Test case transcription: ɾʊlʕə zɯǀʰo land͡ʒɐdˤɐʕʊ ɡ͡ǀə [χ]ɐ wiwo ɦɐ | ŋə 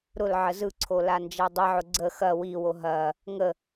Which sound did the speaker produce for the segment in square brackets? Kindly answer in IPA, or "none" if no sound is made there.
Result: x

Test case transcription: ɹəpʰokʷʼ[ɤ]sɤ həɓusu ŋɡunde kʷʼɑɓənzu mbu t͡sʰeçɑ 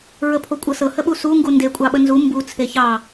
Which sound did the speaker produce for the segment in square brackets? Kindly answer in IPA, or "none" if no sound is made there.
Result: ɤ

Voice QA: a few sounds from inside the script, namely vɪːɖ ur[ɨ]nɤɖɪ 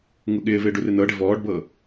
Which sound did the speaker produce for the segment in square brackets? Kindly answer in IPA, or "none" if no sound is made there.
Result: ɨ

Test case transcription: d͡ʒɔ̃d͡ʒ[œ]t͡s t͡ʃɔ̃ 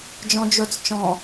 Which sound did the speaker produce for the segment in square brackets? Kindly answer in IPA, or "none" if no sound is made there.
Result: ɵ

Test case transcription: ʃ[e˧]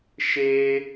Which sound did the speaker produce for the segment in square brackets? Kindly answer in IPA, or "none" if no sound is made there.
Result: e˧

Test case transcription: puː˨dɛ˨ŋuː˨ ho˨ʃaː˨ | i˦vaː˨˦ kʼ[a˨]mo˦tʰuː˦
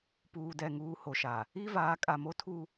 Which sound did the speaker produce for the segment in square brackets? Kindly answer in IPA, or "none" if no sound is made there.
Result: a˨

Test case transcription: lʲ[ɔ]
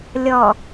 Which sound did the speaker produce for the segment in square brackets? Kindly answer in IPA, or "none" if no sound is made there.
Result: ɔ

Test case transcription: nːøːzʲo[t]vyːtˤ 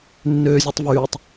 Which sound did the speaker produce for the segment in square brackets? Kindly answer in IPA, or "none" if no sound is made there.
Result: tˤ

